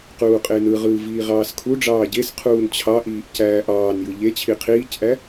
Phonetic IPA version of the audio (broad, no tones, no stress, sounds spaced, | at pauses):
q uː qʼ e n ɯ ʁ ɯː v iː ʁ ɑː s kʰ u ɖ͡ʐ ɑː ɟ e s qʰ uː n t͡ɕʰ ɑ ʔ iː ʔ c æː ʔ ɑː n j ɯ ʎ e t͡ɕʰ i qʰ iː c ʔ æ